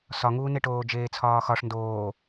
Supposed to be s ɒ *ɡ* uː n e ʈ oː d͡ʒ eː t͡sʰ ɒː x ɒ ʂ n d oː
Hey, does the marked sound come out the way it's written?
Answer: no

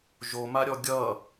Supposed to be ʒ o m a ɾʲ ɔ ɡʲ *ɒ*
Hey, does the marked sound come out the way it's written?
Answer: no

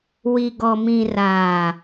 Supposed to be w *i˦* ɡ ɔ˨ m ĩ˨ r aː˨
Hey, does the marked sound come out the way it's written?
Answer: no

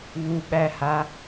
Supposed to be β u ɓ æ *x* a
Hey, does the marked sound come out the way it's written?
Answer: no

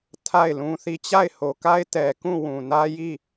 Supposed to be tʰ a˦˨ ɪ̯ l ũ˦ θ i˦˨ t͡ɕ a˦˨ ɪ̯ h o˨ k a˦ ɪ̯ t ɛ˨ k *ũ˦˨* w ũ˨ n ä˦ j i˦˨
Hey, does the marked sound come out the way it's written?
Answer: yes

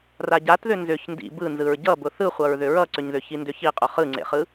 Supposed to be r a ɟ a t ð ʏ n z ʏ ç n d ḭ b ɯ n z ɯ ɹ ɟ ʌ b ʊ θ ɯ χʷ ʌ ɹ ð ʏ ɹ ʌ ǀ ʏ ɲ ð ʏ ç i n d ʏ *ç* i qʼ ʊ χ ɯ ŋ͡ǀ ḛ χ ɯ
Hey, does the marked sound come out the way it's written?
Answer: yes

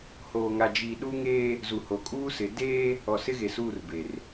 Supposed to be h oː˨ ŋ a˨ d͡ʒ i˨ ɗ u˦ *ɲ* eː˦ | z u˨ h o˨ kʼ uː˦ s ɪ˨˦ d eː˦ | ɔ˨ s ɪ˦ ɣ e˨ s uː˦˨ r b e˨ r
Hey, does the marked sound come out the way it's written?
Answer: no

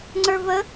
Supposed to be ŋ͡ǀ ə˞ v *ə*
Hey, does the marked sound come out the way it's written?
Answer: yes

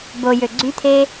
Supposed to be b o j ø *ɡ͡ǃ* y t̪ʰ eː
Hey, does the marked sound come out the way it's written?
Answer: no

